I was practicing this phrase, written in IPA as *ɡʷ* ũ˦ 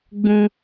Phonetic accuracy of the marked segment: incorrect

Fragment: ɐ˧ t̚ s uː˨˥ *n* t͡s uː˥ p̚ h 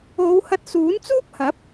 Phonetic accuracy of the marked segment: correct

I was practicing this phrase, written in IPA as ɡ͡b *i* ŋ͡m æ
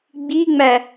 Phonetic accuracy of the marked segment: correct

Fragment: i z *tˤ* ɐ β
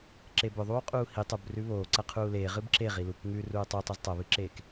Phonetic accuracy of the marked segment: correct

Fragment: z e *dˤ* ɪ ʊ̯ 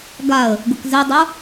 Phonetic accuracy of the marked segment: correct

